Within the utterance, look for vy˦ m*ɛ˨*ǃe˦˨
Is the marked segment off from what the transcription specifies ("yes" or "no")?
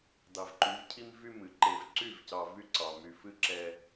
yes